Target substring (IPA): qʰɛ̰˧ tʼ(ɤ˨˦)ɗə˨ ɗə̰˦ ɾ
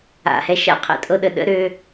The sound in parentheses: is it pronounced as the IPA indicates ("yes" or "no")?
no